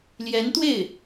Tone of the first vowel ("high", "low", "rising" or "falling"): rising